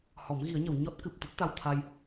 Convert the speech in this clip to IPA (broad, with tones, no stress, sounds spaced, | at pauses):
h ɔ˨˩˦ m ɣ i˨˩˦ ə̯ ɲ ə˨˩˨ w ɲ ɔ˦˥ t̚ k ɨ˨˩ p̚ t̪ o˦˥ t̚ t̪ a˧ w t̪ʰ a˧ j